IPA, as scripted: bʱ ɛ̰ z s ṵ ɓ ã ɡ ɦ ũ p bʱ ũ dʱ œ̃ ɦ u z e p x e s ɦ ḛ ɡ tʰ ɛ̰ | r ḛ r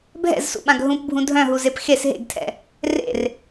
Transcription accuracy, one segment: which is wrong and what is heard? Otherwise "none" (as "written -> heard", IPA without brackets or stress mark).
none